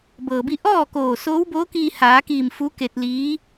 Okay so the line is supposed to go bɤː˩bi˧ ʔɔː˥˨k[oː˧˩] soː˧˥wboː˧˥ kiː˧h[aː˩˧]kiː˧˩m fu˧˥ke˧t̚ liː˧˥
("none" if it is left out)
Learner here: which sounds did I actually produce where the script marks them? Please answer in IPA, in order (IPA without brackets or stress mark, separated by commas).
oː˧˩, aː˩˧